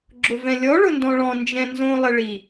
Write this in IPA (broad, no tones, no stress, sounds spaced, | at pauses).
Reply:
ɡ͡ǁ ʊ v ɛ̃ lʲ ɔ ɭ ʊ n d ɔ̃ ɭ ɔ̃ n d͡ʒ ɛ̃ n z õ lˠ ɪ ɭ i